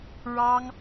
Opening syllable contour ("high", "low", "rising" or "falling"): high